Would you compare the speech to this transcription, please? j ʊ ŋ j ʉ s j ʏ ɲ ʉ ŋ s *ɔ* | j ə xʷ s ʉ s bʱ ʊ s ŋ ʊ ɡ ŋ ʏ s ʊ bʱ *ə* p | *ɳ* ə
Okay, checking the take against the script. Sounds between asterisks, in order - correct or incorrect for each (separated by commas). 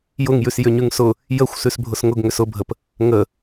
incorrect, correct, incorrect